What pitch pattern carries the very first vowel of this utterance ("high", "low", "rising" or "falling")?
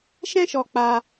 high